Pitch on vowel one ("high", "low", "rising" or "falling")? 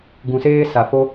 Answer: low